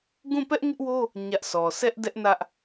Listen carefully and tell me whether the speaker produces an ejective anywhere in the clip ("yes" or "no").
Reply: no